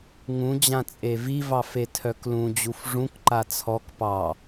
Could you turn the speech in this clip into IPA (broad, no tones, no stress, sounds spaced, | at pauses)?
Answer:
ŋ ũ d͡ʑ ã t͡sʼ e v i v ɑ f e tʰ œ k l ũ d͡ʑ u f ʐ ũ k ǃ a t͡sʰ ɔ k p ɑ